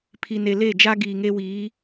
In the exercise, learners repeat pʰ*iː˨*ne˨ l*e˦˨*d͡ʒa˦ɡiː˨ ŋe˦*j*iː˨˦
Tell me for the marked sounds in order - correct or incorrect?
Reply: incorrect, correct, incorrect

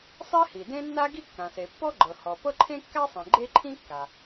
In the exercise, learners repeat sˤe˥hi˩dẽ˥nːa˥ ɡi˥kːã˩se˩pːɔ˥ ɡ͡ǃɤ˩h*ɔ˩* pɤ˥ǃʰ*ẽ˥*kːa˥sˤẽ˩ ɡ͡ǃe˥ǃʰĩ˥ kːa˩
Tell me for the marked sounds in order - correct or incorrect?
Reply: correct, correct

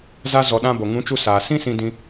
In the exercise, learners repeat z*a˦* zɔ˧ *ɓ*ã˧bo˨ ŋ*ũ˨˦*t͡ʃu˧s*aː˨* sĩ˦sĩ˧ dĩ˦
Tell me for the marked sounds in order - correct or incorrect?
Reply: correct, incorrect, correct, correct

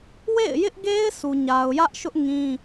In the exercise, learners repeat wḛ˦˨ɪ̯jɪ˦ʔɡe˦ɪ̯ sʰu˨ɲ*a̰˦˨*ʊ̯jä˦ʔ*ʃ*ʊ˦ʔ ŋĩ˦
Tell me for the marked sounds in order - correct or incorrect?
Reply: incorrect, correct

